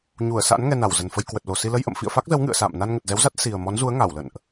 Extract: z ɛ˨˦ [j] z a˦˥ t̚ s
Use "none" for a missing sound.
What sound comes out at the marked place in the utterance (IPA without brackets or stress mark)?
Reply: w